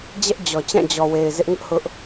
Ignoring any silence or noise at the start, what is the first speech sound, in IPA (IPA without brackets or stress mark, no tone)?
d͡ʑ